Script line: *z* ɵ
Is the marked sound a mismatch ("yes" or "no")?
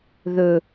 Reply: yes